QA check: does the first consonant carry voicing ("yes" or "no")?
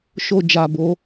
no